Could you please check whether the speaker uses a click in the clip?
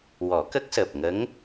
no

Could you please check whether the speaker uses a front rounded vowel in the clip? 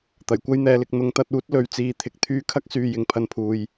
yes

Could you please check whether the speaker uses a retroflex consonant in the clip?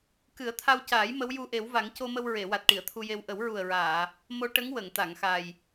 yes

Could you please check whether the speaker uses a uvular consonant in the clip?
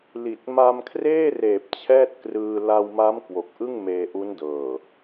no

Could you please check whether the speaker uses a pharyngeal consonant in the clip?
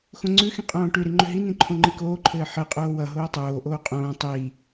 yes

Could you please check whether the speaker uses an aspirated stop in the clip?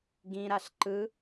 no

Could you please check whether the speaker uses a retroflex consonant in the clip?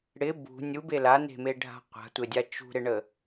yes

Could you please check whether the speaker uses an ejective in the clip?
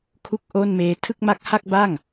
no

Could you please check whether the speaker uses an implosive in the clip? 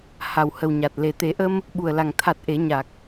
yes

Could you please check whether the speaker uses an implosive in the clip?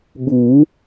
yes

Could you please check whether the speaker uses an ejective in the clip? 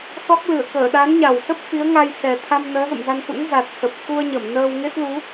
no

